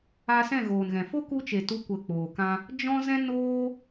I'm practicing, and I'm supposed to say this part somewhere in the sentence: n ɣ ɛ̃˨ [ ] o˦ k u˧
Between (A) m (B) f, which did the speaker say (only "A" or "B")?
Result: B